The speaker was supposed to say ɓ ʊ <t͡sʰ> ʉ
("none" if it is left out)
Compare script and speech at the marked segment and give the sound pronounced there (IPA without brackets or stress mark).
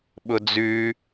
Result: d͡z